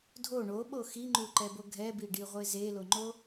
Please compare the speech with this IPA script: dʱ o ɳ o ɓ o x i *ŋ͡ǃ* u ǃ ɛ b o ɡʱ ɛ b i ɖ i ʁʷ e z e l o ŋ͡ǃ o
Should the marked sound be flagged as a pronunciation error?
no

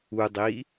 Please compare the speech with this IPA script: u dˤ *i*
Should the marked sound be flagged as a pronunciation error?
no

